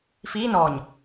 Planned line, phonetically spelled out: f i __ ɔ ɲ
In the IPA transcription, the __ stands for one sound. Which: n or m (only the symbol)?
n